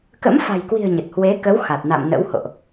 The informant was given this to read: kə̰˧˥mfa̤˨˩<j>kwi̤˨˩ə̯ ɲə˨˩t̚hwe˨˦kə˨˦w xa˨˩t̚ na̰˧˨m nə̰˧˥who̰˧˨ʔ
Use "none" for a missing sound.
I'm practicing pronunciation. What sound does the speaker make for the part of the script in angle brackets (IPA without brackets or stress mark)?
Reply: j